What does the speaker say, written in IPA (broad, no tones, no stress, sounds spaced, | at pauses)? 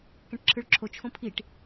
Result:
k ɛ̃ ʈ ǁʰ ɯ ɭ ǁʰ o t͡ʃʰ õ pʰ i ʈ